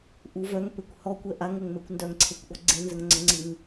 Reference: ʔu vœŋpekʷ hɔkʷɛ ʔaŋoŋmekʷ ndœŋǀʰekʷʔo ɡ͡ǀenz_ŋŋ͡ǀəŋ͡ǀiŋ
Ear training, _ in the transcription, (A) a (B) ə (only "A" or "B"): B